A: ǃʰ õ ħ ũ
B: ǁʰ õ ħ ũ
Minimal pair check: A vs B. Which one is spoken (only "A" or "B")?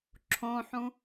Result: B